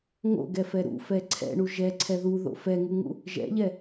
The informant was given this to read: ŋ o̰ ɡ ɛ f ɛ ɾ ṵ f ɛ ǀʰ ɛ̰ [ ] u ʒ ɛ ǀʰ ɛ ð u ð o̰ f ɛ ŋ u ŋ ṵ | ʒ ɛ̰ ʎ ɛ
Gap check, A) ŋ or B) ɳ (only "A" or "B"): B